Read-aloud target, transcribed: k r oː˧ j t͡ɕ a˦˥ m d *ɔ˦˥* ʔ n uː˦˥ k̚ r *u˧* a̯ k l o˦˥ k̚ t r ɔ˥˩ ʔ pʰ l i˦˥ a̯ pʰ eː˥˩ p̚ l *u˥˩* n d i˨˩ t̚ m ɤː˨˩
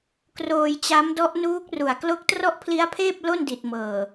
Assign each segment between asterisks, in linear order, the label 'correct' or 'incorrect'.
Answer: correct, incorrect, incorrect

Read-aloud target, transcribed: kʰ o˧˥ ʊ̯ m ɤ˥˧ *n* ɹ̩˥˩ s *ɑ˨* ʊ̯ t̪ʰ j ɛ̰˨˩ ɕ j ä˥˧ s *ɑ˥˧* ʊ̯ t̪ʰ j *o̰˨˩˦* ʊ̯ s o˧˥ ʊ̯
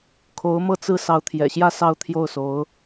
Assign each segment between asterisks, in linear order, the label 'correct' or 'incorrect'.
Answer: incorrect, incorrect, correct, incorrect

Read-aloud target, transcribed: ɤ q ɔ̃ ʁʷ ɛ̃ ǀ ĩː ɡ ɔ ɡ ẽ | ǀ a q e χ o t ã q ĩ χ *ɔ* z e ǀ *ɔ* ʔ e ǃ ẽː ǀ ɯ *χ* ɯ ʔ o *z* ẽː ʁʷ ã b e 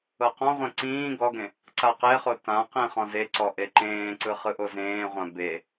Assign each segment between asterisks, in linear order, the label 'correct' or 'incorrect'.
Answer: incorrect, correct, correct, correct

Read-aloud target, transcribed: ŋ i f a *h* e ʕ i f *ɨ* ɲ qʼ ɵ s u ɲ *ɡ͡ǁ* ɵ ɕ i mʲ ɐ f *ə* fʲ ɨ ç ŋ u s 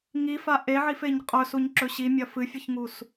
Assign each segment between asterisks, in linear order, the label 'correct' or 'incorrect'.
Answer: incorrect, incorrect, incorrect, incorrect

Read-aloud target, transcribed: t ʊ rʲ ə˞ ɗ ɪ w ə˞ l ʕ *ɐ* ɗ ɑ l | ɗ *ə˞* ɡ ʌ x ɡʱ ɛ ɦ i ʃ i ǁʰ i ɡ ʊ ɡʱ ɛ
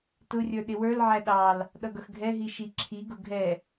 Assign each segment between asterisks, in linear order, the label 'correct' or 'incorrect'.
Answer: incorrect, incorrect

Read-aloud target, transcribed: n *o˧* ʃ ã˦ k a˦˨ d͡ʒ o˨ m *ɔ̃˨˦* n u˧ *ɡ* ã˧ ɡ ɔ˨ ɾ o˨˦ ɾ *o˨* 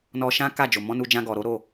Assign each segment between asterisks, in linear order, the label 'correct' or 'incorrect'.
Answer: incorrect, correct, incorrect, incorrect

